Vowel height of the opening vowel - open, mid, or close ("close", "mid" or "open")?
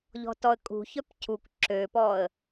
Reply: mid